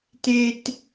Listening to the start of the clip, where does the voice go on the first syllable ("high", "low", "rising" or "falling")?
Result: high